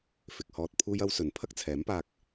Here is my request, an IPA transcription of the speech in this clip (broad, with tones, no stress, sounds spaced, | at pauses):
f ɪ˨ k̚ h ɔː˧ t̚ pʰ uː˥ j ɐ˥ w s ɵ˨˧ n pʰ ɐ˥ k̚ t͡sʰ ɛː˨˥ m p aː˧ k̚